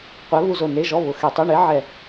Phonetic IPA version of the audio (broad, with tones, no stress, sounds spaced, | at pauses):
qʷ ɛ˧˥ β u˥˨ z o˥˨ n e˧˥˧ ʒ ɔ˧˥˧ β ʊ˧˩˧ x e˧˩˧ tˤ o˧˥˧ ɳ e˧˥ ʕ ɛ˥˨